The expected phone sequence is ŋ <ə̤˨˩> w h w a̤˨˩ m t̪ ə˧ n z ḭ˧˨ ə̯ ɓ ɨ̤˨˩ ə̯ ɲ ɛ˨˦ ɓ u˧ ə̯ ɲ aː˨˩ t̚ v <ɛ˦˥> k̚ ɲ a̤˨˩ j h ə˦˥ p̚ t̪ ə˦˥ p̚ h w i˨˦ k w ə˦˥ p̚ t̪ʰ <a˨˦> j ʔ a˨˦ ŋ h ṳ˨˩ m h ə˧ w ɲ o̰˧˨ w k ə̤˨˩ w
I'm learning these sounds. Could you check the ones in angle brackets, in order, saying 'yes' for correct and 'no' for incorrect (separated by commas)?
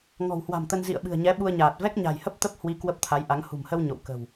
no, yes, yes